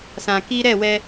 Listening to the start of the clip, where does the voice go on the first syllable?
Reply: low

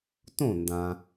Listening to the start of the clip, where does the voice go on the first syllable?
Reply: falling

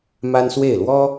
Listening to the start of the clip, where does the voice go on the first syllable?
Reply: high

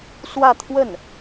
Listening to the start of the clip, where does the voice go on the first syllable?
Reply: falling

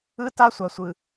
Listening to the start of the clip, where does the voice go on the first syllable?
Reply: high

